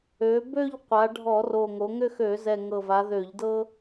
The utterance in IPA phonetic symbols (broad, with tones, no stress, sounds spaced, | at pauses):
ø˩˧ b ø˥˧ ʎ qʷ a˩˧ ɖʱ ɔ˧˩˧ r o˨˩ ŋ o˩˧ ŋ ʏ˥˧ x ø˧˩˧ z ɛ˨˩ ŋ ɤ˨˩ v a˩˧ ð ø˧˩˧ ʎ d ɤ˥